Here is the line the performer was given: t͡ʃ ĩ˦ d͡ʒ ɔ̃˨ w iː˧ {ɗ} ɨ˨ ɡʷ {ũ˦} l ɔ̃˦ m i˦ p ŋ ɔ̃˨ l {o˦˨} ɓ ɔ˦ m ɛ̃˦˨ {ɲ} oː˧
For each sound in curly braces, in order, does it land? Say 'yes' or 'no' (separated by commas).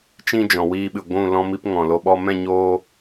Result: no, no, no, yes